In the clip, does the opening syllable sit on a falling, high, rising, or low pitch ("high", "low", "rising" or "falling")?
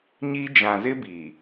high